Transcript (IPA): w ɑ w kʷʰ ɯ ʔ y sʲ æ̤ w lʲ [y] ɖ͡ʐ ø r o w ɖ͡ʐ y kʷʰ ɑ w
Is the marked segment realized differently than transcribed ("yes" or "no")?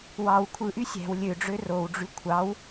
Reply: yes